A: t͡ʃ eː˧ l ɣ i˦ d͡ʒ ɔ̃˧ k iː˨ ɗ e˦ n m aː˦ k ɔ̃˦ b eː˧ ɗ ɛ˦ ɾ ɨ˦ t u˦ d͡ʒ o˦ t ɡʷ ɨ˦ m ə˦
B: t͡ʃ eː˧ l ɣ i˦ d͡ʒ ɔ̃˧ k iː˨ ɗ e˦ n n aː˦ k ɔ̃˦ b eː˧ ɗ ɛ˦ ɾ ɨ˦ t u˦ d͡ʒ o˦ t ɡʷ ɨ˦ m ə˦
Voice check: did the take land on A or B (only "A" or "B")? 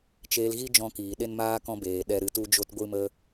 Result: A